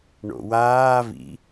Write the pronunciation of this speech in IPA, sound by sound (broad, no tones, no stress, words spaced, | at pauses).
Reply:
ɳo̰waː vḭ